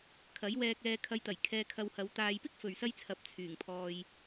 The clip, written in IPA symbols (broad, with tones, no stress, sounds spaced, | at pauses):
kʰ ɐ˨˥ j w ɛː˧ k̚ ɛː˧ kʰ ɐ˨˧ j t̪ ɐ˨˩ j kʰ ɛː˧ kʰ ɐ˧ w h ɐ˨˧ w t̪ aː˨ j p ɪ˥ k̚ f ɵ˨ ɥ s ɐ˥ j t͡sʰ ɐ˨˥ p̚ t͡sʰ yː˨˩ ŋ pʰ ɔː˨ j